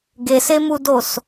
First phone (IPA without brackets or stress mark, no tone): ɡ